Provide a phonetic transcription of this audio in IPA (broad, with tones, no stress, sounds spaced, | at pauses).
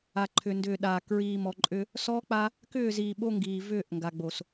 a˨ ǃʰ ʏ˨ n d ʏː˨ ɗ aː˨ k ɹ iː˨ m ɔ˨ ǃʼ ʏ˦ | s ɔː˦ k͡p a˦ | k ʏː˦˨ z iː˨ ɓ o˦ ŋ ɡ iː˨ v ʏː˦˨ ʔ ŋ ɡ a˨ ɡ͡b o˨ s